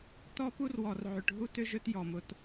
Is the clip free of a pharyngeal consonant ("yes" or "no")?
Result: no